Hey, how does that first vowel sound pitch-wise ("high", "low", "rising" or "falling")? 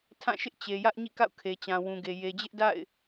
falling